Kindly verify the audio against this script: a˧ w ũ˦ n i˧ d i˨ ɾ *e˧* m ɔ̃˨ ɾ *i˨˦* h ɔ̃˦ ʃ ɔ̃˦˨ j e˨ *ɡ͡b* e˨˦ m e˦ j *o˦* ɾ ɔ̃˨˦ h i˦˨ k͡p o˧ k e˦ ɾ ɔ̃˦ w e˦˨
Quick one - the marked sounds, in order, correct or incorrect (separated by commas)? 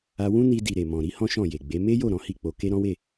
incorrect, correct, correct, incorrect